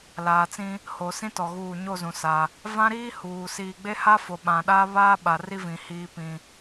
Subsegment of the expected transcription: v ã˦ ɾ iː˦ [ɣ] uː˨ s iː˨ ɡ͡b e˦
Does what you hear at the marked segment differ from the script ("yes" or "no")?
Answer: yes